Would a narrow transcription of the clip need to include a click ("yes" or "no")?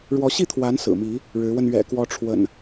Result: no